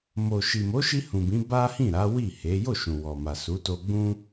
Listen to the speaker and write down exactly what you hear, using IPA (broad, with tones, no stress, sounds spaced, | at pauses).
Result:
m o˨ ʃ i˨ m o˨˦ ʃ i˧ h ũ˨ b ĩ˨˦ b a˦ h ĩ˦˨ ɾ a˨˦ w i˦˨ h e˨˦ j o˦˨ ʃ ũ˨ w ɔ˨ m a˨ s u˨˦ t o˧ ɡ͡b ũ˦